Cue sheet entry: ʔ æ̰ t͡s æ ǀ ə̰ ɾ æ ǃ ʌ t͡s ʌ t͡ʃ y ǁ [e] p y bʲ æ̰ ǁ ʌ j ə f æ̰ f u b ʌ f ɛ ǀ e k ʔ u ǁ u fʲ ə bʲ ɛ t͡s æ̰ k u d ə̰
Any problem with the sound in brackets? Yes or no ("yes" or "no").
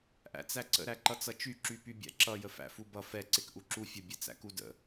yes